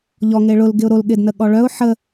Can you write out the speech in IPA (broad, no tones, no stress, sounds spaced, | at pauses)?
ʎ ɔ ŋ e ɭ ʊ l ɡ ɪ ʊ̯ ɾ o l ɠ ɪ d n ə ɠ ɔ ɭ œ ʊ̯ ħ ə